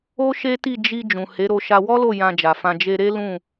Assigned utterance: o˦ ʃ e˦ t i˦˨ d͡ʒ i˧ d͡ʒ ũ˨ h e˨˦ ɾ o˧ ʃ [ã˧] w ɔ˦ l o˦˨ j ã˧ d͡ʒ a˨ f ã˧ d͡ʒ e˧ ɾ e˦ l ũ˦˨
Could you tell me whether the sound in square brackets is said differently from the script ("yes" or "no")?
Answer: yes